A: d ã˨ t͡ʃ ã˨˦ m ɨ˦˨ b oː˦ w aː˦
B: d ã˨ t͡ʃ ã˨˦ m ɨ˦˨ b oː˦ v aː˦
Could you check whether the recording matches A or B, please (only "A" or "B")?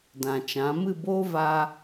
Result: B